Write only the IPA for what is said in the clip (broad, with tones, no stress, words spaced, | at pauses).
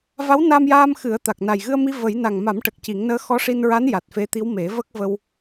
va˧˥wna˧mjaː˧m xɨ˨˩˦ə̯t̪a˨˩k̚ na˨˩jɣɨ˧ə̯mi˧ və˨˩˦j na˨˩ŋma˨˩˦mʈə˨˩k̚ ci˨˩˦ŋnəː˧˥ xɔ˧˥ʂi˧nɹa˧˥n ja˨˩t̚fe˧˥t̪i˧˥w me˨˩˦və˦˥k̚ və˧w